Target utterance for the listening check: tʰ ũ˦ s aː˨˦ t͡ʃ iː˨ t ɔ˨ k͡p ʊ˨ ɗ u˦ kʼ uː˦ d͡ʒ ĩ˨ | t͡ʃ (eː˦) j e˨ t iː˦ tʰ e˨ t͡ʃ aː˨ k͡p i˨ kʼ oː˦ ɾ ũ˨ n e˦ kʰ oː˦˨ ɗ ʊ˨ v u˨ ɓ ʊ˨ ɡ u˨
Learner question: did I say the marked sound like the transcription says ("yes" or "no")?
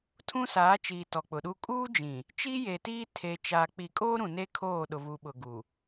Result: no